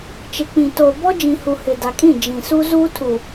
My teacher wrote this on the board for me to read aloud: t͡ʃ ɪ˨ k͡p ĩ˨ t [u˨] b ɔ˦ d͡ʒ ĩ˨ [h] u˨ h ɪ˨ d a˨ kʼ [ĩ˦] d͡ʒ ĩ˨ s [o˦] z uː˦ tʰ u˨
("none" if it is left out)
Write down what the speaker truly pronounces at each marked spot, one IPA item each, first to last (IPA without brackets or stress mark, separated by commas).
o˨, h, ĩ˦˨, u˦